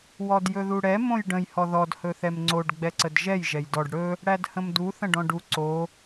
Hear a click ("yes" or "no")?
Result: yes